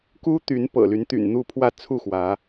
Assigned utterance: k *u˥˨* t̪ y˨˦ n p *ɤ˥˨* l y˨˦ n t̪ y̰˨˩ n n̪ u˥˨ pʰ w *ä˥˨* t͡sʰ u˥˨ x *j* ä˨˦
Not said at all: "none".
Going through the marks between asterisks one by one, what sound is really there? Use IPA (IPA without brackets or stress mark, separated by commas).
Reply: u˦, ɤ̰˨˩, ä˥˨, w